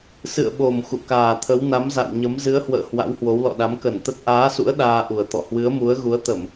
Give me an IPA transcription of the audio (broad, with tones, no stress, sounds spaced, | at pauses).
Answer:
s ɨ̰˧˨ ə̯ ɓ o˨˩ m x ṵ˧˨ k aː˨˩ t̪ʰ ə˨˦ w n a˨˦ m z a̰˧˨ w ɲ ə˨˦ m z ɨ˨˦ ə̯ h w ə̰ː˧˨ h w a̰˧˥ w h w o˨˦ w l ɔ̰˧˨ ɗ a˨˦ m k ə˧˩ n t̪ ə˦˥ t̚ ʔ aː˨˦ s ṵ˧˥ ə̯ ɗ aː˧ ʔ u˨˩ ə̯ t̪ ɔ̰˧˨ h w ɨ˨˦ ə̯ m u˨˦ ə̯ ɣ u˨˦ ə̯ t̪ ə˧˩˨ m